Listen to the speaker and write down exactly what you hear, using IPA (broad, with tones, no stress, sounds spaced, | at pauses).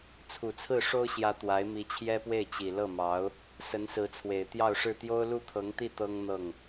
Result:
t͡sʰ u˨˩ t͡sʰ ɹ̩˥˩ ʂ o˥ ʊ̯ ɕ j ä˧˥ t̪ w a˧˥ ɪ̯ m i˧˥ t͡ɕʰ j ɛ˥ p w e˥˩ ɪ̯ t͡ɕ i˨˩ l ɤ˥˩ m ɑ˧˥ ʊ̯ | s ə˧˥ n s ɹ̩˧˥ t͡sʰ w e˨˩ ɪ̯ t̪ j ɑ˥˧ ʊ̯ ʂ ɻ̩˥˩ t̪ j o˥ ʊ̯ l u˥˩ t̪ʰ ɤ˧˥ ŋ t̪ i˥˩ t̪ ɤ˥ ŋ n̪ ɤ˥˩ ŋ